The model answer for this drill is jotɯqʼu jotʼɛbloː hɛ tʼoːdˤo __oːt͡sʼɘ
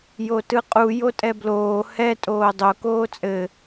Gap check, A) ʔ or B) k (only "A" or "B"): B